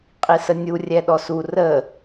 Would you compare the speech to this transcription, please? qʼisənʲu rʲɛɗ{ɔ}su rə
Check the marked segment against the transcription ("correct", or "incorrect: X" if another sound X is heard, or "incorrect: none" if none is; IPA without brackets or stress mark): correct